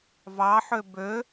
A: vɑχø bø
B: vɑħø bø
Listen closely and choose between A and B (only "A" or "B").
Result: B